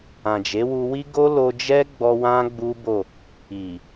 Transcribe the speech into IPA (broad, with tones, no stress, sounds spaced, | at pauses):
ã˨ d͡ʒ e˨˦ w u˧ w i˦ ɡ o˦ l o˧ d͡ʒ ɛ˦ ɡ͡b ɔ˧ w ã˦ ɡ͡b u˦ b o˦˨ | i˨